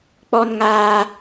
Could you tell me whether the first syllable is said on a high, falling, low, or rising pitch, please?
high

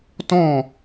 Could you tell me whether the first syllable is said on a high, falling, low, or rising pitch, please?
falling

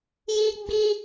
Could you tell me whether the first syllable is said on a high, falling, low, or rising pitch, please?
high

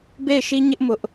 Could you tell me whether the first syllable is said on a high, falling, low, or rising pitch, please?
falling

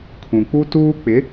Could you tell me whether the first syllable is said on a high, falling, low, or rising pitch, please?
low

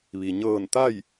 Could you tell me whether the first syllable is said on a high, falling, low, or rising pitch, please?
low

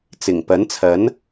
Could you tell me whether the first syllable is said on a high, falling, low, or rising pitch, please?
low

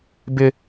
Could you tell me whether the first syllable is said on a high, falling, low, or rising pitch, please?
high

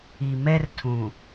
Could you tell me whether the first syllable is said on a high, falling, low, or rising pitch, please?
low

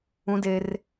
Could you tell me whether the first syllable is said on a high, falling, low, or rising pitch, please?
high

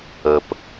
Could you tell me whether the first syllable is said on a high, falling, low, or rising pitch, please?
low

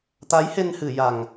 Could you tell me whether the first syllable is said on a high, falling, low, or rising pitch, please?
rising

